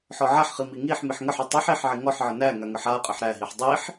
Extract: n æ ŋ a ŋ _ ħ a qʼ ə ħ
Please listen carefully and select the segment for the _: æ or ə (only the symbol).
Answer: ə